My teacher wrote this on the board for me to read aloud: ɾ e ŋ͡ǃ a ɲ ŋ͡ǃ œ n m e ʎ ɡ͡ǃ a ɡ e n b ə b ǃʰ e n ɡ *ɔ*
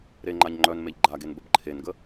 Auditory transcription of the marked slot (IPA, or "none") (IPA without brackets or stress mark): ə